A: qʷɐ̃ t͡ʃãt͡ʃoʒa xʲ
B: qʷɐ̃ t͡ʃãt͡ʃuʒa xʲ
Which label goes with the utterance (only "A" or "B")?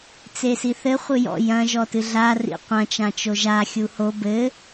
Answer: A